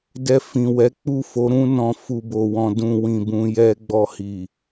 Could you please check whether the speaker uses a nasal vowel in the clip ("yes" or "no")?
yes